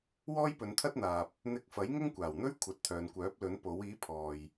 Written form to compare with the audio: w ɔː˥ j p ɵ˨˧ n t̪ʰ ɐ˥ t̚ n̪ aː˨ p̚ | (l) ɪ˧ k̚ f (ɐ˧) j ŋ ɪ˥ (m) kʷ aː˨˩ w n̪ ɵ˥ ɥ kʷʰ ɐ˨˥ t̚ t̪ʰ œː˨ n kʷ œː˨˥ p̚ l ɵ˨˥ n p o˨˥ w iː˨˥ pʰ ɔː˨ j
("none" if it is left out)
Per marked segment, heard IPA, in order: n̪, ɐ˨˥, ŋ

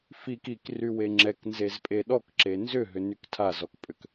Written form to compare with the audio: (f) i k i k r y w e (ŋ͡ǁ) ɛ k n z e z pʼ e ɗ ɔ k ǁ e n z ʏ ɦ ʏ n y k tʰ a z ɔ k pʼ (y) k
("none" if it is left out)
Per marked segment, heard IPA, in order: f, ŋ͡ǁ, ʏ

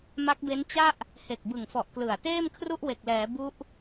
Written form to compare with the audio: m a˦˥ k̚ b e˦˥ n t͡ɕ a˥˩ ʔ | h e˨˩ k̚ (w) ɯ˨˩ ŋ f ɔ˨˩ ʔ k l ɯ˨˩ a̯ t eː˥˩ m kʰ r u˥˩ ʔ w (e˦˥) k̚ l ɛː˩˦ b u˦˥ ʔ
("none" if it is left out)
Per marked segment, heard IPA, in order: b, e˨˩

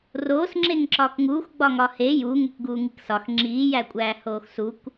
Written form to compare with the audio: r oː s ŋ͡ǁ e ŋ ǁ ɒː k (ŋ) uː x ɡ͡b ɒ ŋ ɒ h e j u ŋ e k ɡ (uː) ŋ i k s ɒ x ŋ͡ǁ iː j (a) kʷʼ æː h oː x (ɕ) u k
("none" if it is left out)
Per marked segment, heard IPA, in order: ŋ, uː, æ, s

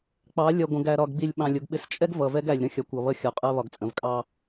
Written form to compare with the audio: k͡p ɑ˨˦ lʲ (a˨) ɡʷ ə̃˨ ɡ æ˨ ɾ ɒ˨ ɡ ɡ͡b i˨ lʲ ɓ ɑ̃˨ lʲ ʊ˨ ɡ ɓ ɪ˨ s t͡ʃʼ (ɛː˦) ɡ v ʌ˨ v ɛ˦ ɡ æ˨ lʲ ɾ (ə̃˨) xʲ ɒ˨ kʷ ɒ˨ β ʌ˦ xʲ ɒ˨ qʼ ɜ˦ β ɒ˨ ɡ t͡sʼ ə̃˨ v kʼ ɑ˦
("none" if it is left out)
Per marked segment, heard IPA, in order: ʌ˨, ɛ˦, ə̃˦˨

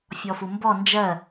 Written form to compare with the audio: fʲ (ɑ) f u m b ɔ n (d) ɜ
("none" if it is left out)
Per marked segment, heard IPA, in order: ɔ, d͡ʒ

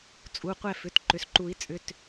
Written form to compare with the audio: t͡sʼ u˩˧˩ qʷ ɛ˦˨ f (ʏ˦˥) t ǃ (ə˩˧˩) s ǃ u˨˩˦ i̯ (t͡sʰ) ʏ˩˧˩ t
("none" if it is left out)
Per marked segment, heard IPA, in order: ʏ˩˧˩, ʏ˩˧˩, t͡sʼ

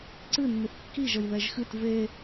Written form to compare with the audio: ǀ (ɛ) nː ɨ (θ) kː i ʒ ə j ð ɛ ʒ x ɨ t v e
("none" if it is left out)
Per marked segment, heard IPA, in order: ɨ, θ

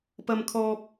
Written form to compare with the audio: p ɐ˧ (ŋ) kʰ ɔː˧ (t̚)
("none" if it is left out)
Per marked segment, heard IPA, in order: m, p̚

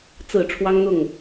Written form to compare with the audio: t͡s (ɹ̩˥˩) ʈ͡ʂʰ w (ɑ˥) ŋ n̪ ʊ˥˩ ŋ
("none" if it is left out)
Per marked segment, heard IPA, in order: ɹ̩˨˩, ɑ˥

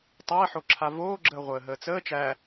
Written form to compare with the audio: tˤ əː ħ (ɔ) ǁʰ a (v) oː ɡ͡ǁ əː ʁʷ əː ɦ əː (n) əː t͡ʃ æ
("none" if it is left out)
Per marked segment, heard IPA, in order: o, v, t͡s

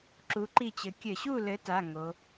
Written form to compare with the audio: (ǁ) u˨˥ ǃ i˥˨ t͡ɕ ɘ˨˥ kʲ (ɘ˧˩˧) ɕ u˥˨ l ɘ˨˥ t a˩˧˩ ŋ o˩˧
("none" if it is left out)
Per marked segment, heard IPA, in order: ǁ, ɘ˧˩˧

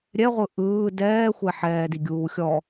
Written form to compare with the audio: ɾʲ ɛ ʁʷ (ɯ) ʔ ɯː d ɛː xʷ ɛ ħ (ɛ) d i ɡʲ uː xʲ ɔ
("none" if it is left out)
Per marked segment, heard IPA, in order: ɯ, ɛː

